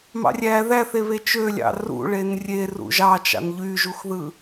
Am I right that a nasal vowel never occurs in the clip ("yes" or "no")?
yes